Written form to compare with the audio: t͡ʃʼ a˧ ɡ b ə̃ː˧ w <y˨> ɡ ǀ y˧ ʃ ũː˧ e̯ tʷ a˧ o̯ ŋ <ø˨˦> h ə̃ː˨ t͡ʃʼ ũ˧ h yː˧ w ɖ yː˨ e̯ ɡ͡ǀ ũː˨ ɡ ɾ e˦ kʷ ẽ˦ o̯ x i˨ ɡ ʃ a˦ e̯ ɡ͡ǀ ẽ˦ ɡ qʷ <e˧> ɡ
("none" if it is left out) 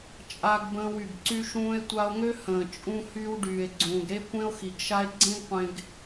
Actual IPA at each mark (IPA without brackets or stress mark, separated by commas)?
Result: y˨, ø˦, ẽ˧